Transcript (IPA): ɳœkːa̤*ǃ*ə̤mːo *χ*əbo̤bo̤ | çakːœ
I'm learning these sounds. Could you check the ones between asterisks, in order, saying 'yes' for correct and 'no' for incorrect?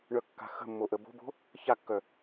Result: no, no

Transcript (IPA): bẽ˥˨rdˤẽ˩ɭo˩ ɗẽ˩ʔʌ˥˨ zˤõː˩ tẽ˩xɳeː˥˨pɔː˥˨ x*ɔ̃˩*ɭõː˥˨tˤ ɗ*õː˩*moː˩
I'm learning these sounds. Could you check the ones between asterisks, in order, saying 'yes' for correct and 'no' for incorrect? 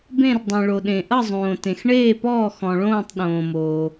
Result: yes, yes

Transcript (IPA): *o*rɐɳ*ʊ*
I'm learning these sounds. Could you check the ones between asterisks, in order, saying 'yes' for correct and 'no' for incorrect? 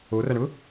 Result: yes, yes

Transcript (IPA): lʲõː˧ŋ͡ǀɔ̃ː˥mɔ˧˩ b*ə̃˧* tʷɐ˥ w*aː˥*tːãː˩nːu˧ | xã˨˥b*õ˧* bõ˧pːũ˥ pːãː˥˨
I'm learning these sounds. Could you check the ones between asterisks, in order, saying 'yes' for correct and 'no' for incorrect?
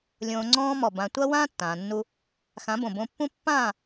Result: no, no, no

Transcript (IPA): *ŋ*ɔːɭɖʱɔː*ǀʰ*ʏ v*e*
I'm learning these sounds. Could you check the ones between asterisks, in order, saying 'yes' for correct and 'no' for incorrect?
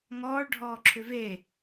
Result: yes, no, yes

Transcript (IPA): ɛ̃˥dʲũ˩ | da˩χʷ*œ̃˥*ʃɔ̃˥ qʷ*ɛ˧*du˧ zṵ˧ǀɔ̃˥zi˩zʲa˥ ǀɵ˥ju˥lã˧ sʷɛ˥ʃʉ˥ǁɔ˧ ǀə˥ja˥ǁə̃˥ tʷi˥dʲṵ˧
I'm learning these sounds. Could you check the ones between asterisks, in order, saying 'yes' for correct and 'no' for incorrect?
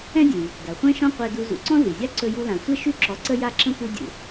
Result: no, yes

